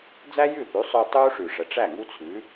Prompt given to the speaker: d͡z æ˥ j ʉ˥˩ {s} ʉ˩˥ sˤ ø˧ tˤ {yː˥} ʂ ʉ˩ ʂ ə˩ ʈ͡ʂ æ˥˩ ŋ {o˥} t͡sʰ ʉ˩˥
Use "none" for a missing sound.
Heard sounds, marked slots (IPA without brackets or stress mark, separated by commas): θ, uː˥, u˥